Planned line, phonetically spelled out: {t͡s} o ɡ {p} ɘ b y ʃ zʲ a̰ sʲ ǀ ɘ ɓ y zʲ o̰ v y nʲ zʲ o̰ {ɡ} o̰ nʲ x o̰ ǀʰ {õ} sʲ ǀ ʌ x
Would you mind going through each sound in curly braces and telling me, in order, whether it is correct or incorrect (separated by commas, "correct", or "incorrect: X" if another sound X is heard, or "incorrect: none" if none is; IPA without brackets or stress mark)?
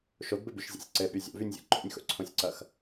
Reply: incorrect: ʃ, incorrect: b, incorrect: ǃ, correct